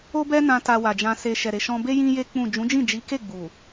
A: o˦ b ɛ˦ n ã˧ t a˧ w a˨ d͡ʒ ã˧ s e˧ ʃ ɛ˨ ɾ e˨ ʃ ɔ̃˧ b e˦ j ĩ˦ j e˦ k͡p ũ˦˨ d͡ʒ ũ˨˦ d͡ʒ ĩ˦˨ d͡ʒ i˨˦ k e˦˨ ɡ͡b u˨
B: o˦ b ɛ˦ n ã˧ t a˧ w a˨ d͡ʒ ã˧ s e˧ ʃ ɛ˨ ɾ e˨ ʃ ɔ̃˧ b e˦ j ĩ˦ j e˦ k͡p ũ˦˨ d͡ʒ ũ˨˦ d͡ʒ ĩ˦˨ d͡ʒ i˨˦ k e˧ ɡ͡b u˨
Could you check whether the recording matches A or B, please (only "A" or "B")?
A